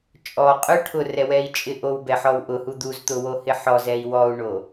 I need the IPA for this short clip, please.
t͡ʃʼ ɔ qʼ ʊ ʈʰ ʊ r ɛ w ɛ i̯ t͡ʃʼ ɪ ʔ o w b ɛ ħ ɔ w ʔ ʊ h u d̪ u z t̪ ʊ w o h ɪ ħ ɔ z ɛ i̯ w ɔ u̯ ɳ o

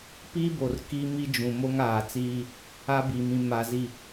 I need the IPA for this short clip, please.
p i˦ b o˨ r k i˦ m i˦ d͡ʒ ũ˨ m o˦ ŋ aː˨ t͡s iː˦ | a˦ b i˨ m ĩ˨ m a˨ z i˨

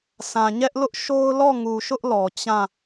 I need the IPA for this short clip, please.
sʰ ã˨ ɲ ɛ˦ ʔ l ʊ˦ ʔ ʃ o˦ ʊ̯ l ɔ˦˨ ŋ u˨ ʃ ʊ˦ ʔ l ɔ˨ t͡ɕ ã˦˨

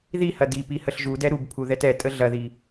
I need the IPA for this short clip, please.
ð i h ɐ d i p i h ə ɬ ʒ u d ɛ ɾ u b pʰ u ð ɛ t ɛ tʼ ə ɮ ɐ ð i

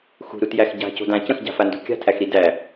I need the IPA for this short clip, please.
x ṳ ɾ u t j æ x ɟ a̤ c o̤ d ã c ə̃ x ɟ a̤ f a n d o̤ kʲ a̤ tʰ æ x ɾ i d æ

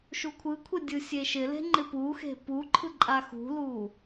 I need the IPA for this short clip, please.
ʃ u kʷʰ ɯ kʷʰ e dʲ ɯ sʲ e ʃ ɪ l e̤ ŋ͡ǃ ɪ p u x e̤ p u ǃʰ ɯ ǃʼ a x ṳ l u

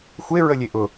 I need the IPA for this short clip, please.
xʷ e ɹ ə lʲ e ʔ ʊ

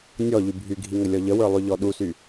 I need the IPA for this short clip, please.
nʲ ɔ ʎ y bʱ y ɡʱ i ŋ ə lʲ ɔ ʎ ə w ə˞ lˠ y ʎ ɔ ɗ u s y

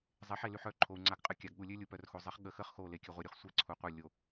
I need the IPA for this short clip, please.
zˤ e˨˦ ħ e˨ l y˨ ħ œ˨ ǃʰ o˨ u̯ ŋ͡ǀ a˨ ɡ qʼ ə˨ kʲ a˨ ɡ ɠ u˨ lʲ ø˦ lʲ u˨ p œ˨ r x o˨ zˤ e˨˦ χ ɠ ə˨ x ə˦˨ χ x o˦˨ l e˨ kʲ œ˨ ʁʷ ɛ˨ ɾʲ u˨ χ sʷ ɛ˦ ǀʰ u˨ qʷ œ˦˨ lʲ o˨

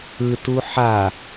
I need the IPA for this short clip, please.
ɯ t u ħ a

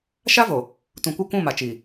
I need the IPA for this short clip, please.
ʃ a˦ v o˨ | t ũ˨ kʷ ɪ˦˨ kʷ ũ˦˨ m a˨ t͡ʃ i˨

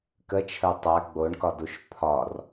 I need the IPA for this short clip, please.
k ə t͡ʃʰ ə˞ tˤ a ɡ͡b o ɳ k ɒ d u ʃ pʰ ɒ r

